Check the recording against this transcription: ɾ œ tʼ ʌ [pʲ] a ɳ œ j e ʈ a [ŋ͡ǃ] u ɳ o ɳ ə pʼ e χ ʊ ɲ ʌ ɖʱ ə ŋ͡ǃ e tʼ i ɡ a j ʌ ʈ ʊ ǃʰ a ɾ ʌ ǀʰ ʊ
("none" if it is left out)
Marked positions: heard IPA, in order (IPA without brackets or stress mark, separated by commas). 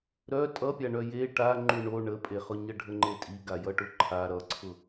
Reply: pʲ, ŋ͡ǃ